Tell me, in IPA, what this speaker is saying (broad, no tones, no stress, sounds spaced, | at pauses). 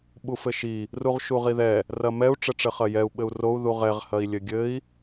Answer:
ɓ u f ɘ ʃ i | r u ʁ ʃ u ʁ i ð ɛ | r ɐ m ɛ u̯ ʈ͡ʂ ɘ ʈ͡ʂ ɘ χ ɐ j ɛ u̯ ɓ ɘ u̯ r o u̯ ð u ʁ ɛ ʁ h ɐ i̯ lʲ ɘ ɡʲ ɘ i̯